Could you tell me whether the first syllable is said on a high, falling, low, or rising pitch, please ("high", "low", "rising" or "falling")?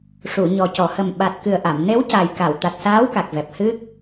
low